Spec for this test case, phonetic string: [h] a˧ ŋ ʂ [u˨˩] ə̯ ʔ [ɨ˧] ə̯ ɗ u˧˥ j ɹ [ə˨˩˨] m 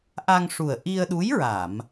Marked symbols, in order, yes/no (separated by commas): no, yes, no, no